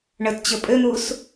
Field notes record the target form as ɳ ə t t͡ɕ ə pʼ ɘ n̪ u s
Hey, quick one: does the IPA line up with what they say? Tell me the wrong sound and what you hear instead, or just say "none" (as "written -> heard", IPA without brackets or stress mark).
none